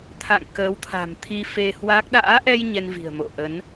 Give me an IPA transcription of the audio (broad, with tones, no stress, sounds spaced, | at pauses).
t̪ʰ a̰˧˨ ŋ k əː˨˦ w t̪ʰ a̤˨˩ m t̪ʰ i˧ f e˧ h w a˦˥ k̚ ɗ a̰ː˧˥ ʔ ɛ˧ j ɲ ɛ˧ n v i̤˨˩ ə̯ m o̰˧˨ ʔ ə˨˦ n